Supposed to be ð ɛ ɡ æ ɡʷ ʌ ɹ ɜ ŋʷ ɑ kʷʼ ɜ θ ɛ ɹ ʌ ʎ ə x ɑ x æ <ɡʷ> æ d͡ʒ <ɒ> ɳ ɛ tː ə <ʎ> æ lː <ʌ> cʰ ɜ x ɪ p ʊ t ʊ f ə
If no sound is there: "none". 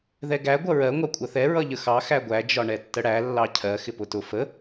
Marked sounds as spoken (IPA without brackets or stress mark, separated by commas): ɡʷ, ɒ, ɽ, ɑ